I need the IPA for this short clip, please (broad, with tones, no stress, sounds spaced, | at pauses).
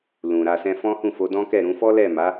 l ũ˨ ɾ a˧ s ɛ̃˦ f ɔ̃˦ h ũ˦˨ f o˧ d ɔ̃˦ k ɛ˦˨ ɾ ũ˧ f ɔ˦ l ɛ˦˨ m a˨˦